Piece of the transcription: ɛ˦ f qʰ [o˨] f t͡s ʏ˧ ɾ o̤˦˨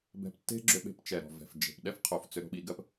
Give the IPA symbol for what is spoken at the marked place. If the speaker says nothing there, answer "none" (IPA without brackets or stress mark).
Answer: o˨